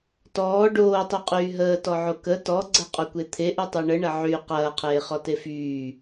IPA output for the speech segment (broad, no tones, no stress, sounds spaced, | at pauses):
t ɔː ɖ oː tˤ u qʼ yː ɦ əː t ɔ ʕ o k ə t ɔ ɡ͡ǀ ɐ qʼ o kʷ e t̪ʰ e ʔ u tˤ u ɳ ə ɳ ɐ ʕ y q ɐː qʰ eː χ ɔ t e f yː